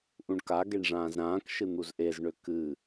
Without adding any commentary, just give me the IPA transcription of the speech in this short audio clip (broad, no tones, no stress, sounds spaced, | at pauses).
ʔ ũ ɳ k a ɡ e ɳ ʐ ãː z ɾ ãː k ʃ ɨ n̪ u z ʔ e z ɳ ø k ɨ